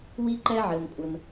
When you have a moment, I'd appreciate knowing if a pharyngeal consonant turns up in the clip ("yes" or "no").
yes